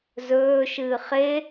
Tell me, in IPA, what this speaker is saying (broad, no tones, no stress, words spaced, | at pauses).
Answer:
zɵːʃɨː χe